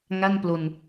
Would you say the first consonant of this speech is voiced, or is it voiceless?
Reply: voiced